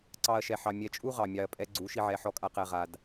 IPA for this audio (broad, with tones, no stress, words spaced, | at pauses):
ǀɑ˦ɐ̯ʃɛ˧ħɑ˧ mʲɛ˧t͡ʃʼu˦ʁɑ˨ mʲɑ˧ɐ̯pʼɛ˦ ɡ͡ǀu˨˦ʃi˧ ʕɛ˧ħɔ˦kʼa˦qɛ˧ ʁa˧d